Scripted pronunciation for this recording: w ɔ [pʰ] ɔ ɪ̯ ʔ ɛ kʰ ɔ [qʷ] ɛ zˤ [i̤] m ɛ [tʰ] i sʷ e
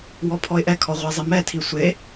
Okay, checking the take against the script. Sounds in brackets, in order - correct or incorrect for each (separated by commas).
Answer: correct, incorrect, incorrect, correct